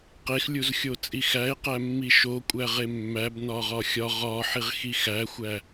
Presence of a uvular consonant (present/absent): present